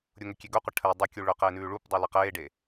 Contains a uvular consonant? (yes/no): yes